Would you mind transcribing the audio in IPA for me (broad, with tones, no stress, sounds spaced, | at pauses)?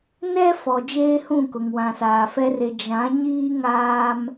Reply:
n ɛ˦ f ɔ˨ d͡ʒ eː˦ h ũ˦˨ k ʊ˨ ŋ w ã˨ s aː˨ f ɛ˦ r e˨ d͡ʒ ã˨˦ ɲ iː˦ ŋ aː˦ m